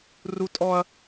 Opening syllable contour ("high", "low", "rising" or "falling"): high